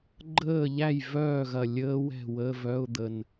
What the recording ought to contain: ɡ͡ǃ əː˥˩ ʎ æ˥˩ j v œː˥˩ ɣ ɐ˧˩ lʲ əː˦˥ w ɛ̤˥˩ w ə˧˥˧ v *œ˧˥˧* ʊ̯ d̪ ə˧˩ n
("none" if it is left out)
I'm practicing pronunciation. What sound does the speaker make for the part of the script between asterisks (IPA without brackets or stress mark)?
œ˧˥˧